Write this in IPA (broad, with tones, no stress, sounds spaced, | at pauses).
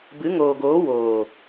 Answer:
b ɨ˨˦ ŋ oː˨ ɡ oː˨˦ w oː˨